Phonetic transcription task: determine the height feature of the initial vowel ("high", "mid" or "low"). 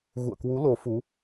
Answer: high